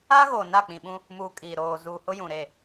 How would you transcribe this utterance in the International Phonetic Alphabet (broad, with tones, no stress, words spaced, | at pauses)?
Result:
a˦ɣo˨ na˦˨k͡pĩ˨ɓũ˦ | muː˨kʼi˨ɾoː˨zuː˨ hʊ˦jũ˨ɾe˦˨